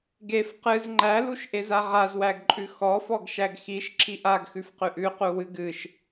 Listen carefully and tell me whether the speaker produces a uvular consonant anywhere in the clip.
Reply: yes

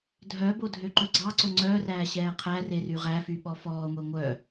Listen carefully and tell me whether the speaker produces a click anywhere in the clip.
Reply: yes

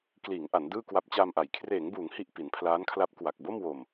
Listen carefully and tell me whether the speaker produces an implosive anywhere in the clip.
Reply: no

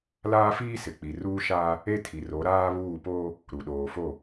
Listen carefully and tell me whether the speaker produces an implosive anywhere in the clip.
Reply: yes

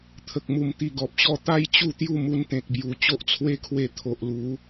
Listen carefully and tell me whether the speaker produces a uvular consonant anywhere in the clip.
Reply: no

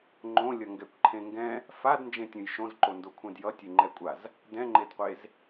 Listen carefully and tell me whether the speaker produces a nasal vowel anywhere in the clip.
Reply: yes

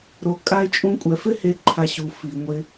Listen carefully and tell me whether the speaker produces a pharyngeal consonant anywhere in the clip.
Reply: no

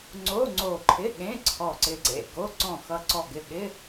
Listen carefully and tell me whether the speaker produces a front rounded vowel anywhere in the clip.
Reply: no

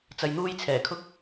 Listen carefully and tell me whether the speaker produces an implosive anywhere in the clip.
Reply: no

